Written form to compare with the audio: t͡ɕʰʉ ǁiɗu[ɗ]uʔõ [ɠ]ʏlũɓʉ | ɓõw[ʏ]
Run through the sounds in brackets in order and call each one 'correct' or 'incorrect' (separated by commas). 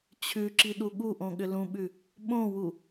incorrect, correct, incorrect